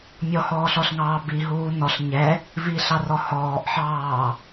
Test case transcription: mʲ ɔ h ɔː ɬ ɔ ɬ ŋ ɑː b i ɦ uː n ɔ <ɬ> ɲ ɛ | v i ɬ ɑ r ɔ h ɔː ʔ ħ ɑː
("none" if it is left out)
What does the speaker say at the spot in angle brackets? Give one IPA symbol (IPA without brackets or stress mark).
ɬ